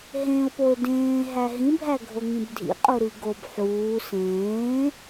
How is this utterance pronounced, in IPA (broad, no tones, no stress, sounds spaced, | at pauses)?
ɦ ẽ ʊ̯ p o ɪ̯ d ẽː ɦ æ ɦ ĩ bʱ æ ɡʱ o ŋ ĩ b dʱ ḭ qʼ u ɾ i ɡ o b ħ uː s ẽː